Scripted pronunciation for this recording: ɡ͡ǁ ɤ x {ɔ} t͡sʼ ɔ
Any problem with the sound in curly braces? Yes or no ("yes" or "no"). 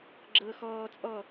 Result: yes